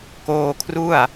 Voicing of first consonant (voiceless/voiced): voiceless